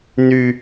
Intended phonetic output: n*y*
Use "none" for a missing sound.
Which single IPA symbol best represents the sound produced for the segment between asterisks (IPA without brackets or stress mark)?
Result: y